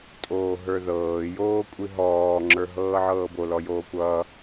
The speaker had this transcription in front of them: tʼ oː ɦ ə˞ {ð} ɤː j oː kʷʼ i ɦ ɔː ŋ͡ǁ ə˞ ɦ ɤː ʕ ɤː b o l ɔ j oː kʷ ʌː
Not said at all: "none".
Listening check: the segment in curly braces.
ð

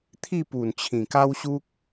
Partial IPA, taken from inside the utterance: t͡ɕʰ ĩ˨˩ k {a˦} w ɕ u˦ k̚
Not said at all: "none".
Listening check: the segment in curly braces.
a˦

